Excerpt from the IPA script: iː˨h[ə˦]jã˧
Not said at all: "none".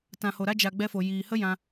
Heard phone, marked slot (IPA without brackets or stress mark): ə˦